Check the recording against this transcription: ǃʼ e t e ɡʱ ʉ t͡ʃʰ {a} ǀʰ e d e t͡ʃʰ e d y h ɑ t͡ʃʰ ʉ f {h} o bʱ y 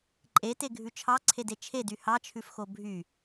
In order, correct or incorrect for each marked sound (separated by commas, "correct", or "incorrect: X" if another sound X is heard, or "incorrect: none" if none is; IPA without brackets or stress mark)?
incorrect: ɑ, incorrect: x